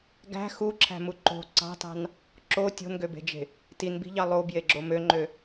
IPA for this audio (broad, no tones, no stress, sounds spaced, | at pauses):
ɡ æ̤ x u ǁʰ æ̤ m u ǃ o̤ ǀ ɑ̤ t ɑ̤ n | ǁ o tʲ o̤ n ɡ ø b e̤ d͡ʒ e̤ | t i n b i̤ ʎ ɑ lˠ o b j e ɡ͡ǁ o m ø ŋ͡ǃ ø